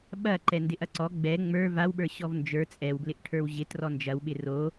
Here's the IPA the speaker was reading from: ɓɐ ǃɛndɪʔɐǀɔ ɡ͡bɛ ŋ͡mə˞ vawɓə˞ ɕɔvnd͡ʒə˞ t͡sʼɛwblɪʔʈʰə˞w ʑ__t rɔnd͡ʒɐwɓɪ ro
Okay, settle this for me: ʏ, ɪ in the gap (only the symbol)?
ɪ